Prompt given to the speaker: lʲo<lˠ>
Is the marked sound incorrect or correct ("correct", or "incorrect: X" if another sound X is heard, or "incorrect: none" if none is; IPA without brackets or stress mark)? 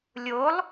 correct